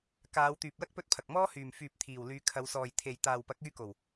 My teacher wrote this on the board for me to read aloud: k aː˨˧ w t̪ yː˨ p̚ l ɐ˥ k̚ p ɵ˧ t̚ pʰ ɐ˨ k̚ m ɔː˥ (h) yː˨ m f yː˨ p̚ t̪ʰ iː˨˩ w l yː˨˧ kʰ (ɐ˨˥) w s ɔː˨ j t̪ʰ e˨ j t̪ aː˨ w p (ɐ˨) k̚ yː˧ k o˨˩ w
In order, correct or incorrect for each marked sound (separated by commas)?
correct, incorrect, incorrect